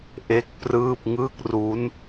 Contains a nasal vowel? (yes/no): no